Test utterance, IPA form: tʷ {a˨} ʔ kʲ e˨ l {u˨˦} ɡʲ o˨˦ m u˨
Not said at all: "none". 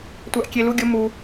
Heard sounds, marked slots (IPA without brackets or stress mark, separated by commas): a˨, u˨˦